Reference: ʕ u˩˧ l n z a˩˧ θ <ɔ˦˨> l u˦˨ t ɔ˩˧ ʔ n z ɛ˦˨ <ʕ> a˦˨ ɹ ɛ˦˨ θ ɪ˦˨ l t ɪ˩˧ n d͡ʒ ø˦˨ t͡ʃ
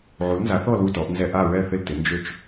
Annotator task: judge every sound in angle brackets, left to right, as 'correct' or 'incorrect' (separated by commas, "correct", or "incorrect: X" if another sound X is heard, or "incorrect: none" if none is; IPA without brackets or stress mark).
correct, incorrect: ʔ